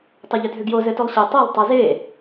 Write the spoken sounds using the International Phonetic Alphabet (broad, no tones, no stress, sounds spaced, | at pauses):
tˤ o ʎ ʏ dʱ ʏ ɡ j o z ɘ t o lˠ ɕ e tˤ e lˠ tˤ ɛ z e